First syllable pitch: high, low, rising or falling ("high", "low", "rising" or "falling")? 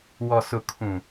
low